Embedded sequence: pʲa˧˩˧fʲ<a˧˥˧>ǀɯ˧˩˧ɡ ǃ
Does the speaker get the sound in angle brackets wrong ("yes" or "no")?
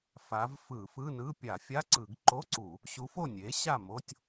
no